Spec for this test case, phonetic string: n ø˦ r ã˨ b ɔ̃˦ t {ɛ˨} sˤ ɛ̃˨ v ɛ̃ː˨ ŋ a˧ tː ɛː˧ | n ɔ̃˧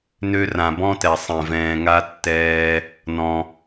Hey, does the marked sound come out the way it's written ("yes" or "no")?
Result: yes